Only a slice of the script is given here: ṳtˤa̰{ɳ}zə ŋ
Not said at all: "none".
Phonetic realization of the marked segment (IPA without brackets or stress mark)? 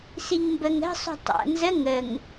n